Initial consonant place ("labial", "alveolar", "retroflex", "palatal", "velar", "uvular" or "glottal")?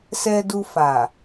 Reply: alveolar